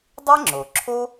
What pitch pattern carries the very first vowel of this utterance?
high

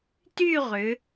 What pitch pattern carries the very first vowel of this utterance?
falling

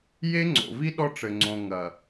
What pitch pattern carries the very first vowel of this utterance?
high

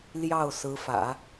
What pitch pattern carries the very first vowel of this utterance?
falling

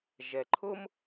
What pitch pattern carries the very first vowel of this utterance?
low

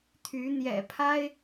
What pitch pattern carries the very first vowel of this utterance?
rising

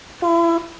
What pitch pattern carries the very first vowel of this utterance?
high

